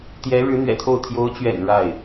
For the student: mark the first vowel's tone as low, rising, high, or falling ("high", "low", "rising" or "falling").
rising